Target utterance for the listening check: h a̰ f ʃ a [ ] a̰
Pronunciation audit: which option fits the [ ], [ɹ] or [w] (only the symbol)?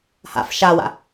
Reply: w